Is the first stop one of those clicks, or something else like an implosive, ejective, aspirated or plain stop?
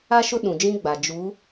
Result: implosive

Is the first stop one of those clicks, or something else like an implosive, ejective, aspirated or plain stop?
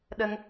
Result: implosive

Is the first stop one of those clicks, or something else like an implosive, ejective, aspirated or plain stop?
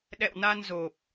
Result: implosive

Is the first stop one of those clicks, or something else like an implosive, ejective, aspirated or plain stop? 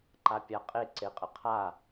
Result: click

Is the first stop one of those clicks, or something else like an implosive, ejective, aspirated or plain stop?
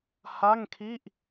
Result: aspirated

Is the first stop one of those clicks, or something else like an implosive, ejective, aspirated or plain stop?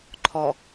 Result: click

